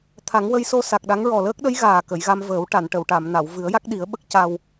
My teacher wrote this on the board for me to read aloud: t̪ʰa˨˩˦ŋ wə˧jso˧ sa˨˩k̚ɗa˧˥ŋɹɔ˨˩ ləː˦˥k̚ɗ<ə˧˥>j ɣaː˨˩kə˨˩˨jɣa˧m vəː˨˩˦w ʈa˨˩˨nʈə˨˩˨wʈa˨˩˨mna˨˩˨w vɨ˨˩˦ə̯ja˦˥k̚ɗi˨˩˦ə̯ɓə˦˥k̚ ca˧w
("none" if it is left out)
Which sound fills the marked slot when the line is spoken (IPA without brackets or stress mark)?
ə˧˥